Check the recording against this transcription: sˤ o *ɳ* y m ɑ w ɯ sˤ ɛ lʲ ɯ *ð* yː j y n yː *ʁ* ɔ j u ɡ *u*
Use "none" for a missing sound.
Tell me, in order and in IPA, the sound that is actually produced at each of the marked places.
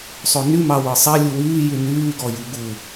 n, w, ɡ, u

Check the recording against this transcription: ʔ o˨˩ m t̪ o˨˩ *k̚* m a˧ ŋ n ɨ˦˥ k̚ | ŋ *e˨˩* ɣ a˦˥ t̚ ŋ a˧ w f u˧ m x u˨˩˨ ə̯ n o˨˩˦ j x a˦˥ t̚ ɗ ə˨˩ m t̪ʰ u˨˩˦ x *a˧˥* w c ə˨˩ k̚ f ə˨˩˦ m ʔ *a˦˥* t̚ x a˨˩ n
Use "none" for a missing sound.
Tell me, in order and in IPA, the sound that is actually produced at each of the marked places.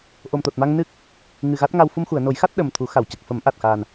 t̚, ɨ˨˩, a˨˩˨, a˨˩

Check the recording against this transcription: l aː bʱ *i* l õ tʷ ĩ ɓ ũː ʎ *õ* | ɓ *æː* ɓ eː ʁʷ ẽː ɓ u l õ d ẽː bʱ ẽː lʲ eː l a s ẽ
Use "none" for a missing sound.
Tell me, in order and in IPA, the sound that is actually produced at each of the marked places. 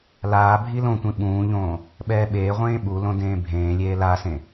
i, õː, ɛː

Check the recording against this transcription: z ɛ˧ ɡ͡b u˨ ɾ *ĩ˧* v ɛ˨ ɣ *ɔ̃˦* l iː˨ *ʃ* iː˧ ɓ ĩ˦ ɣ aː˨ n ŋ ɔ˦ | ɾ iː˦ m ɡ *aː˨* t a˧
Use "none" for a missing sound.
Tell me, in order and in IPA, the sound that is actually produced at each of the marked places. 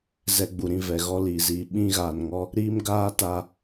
ĩ˧, ɔ˦, z, aː˦

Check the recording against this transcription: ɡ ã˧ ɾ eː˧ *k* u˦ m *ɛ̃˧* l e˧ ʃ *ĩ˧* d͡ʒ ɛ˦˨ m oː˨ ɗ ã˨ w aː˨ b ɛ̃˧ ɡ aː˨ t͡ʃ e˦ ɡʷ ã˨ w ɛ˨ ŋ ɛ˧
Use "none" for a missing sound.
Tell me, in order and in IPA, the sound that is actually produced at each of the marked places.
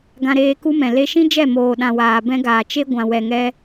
k, ɛ̃˨, ĩ˦

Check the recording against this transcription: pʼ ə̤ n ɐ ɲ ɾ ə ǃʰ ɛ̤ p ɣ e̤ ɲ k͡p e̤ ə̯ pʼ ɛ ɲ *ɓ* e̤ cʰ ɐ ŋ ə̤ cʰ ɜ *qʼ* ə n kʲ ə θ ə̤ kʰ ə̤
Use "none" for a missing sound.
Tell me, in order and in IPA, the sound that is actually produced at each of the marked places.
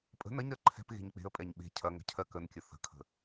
ɓ, k

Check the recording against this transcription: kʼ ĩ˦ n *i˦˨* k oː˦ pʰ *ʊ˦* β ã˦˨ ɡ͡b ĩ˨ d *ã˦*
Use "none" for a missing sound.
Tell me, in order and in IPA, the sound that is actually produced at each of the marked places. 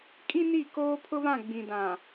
i˦˨, ʊ˦, ã˨

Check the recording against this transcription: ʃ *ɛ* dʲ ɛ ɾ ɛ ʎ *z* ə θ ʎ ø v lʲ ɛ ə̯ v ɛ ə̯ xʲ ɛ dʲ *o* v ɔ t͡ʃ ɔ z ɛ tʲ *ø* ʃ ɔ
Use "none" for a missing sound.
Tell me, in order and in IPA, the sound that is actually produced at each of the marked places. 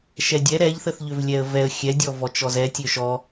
ɛ, θ, ɔ, ø

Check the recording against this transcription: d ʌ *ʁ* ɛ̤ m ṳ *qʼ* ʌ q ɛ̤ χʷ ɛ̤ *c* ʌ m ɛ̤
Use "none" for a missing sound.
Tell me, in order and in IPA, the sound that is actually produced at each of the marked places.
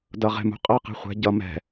ʁ, qʼ, ɟ

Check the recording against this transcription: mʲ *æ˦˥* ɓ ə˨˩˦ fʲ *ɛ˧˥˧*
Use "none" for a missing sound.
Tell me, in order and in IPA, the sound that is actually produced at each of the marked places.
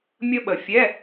ə˦˥, ɛ˧˥˧

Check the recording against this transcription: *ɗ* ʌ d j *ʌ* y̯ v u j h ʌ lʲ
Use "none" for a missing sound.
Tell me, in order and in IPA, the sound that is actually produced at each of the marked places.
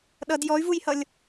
ɗ, ɔ

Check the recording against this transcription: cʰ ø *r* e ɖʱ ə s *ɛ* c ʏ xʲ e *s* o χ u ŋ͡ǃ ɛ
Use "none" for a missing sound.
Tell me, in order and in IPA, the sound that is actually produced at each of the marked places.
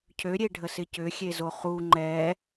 ɾʲ, ɪ, z

